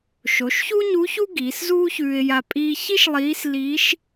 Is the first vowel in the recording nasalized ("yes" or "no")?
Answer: no